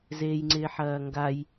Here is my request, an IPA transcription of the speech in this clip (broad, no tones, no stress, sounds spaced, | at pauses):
z eː j ŋ͡ǀ ɪː ħ ɐː ŋ ɡ a j